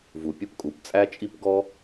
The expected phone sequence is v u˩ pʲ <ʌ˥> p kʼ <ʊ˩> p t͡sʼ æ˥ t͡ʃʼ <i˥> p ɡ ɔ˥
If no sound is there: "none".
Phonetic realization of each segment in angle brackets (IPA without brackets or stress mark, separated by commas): ə˥, u˩, i˥